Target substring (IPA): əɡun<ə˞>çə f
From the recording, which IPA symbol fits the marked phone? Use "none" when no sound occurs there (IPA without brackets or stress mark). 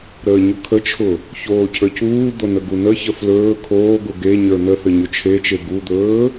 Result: ə